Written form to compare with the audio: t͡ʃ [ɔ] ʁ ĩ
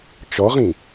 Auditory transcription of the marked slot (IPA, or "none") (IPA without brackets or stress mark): ɔ